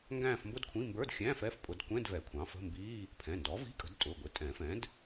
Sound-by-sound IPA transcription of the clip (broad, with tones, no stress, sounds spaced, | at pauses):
ŋ ɡ æ̃ː˥˧ f m b ʊ˥ d kʷʰ ĩ˧˥˧ m b ə˞˧˥˧ d xʲ æ̃ː˧˥˧ f ɛ˥˧ f pʼ ʊ˨˩˦ d kʷ ɛ̃˧˥˧ d v ɛ˨˩˦ kʷʰ ɑ̃˩˥ f ə̤˧˥˧ m b iː˧˥˧ | pʰ ɛ̃˩˧˩ n d ɔ˩˥ v i̤˧˥˧ kʼ ə̤˩˥ d tʼ ʊ˩˧˩ ɡʷ ɪ˩˥ tʼ ɛ̃˨˩˦ f ɛ̃˩˥ d